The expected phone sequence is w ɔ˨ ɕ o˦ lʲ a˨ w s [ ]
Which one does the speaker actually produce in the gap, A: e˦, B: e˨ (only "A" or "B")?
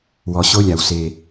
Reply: A